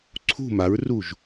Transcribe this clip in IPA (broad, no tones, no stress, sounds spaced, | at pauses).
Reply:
ǀʰ ṳ m a ɹ r u ʒ